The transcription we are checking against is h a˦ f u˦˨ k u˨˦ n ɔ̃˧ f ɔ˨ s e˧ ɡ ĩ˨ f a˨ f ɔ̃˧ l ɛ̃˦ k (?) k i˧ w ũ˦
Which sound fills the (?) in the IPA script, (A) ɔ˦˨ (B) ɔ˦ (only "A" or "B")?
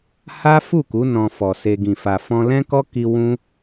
B